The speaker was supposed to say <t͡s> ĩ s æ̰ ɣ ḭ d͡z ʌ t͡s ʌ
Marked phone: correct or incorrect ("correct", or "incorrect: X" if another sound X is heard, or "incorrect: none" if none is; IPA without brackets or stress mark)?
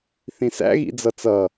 incorrect: θ